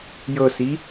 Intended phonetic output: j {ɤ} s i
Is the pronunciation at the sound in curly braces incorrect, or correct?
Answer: correct